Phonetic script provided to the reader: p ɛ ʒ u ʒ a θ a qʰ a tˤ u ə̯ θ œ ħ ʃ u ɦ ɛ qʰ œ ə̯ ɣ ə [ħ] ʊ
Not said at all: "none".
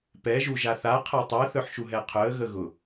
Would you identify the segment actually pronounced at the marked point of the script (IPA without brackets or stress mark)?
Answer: ɣ